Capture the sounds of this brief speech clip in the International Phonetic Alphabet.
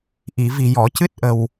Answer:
ʔi˨˩˨ vi˨˩jɔ˨˩˨ cɨ˦˥t̚ʔə˨˩w

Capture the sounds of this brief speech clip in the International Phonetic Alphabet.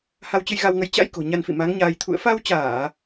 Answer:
ha˧wt͡ɕɨ˧jɣa˧wŋə˨˦j t͡ɕa̰˧˥jko̤˨˩ ɲa˧nfḭ˧˨ ma˨˦ŋɲaː˧j t̪ʰṵ˧˨ə̯fa˧wt͡ɕaː˧˩˨

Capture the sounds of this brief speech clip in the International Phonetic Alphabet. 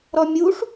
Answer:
ɾɔmʲuʂ

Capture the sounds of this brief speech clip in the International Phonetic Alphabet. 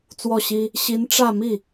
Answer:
t͡swɔ˥˩ɕi˥ | ɕi˧˥n ʈ͡ʂä˥˧ mi˥˩

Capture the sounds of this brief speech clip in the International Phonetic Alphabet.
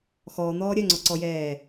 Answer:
xɔːn̪ɔː ɾʲœŋ͡ǀɔǀɔjɛː

